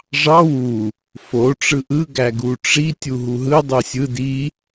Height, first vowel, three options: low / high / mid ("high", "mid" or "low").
low